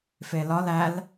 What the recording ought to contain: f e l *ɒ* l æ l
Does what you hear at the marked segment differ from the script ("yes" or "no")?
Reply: no